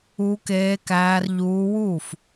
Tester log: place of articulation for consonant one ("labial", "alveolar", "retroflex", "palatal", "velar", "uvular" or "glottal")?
velar